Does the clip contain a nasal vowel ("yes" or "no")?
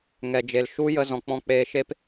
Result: yes